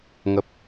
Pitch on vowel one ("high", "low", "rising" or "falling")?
low